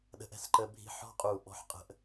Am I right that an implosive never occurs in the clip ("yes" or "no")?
no